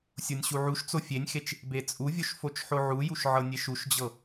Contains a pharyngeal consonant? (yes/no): yes